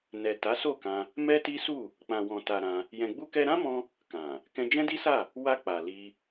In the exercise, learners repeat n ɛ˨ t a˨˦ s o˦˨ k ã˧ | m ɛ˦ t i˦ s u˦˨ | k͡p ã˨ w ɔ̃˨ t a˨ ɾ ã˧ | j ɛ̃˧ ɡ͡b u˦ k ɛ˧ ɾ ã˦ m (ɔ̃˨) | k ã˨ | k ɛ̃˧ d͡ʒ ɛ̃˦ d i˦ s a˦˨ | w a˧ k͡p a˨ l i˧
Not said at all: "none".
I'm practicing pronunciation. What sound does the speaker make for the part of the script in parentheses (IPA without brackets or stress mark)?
ɔ̃˧